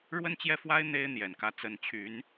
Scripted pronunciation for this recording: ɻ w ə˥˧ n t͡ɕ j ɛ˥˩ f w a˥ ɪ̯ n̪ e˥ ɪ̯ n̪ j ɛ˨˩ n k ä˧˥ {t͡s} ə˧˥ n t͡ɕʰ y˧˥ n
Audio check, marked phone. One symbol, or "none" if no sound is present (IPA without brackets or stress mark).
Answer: t͡s